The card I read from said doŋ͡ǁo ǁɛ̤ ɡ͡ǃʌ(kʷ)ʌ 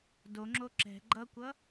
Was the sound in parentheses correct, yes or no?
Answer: yes